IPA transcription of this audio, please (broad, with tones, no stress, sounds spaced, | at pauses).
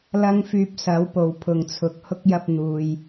l ɐ˥ ŋ f yː˧ p̚ s ɐ˨˥ w p o˨ w pʰ ʊ˨ ŋ t͡sʰ ʊ˨ k̚ h ʊ˥ k̚ j ɐ˧ p̚ n̪ uː˨ j